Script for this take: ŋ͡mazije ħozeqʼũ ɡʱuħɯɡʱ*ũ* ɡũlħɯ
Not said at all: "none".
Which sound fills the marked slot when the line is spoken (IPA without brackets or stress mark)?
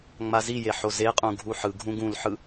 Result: ũ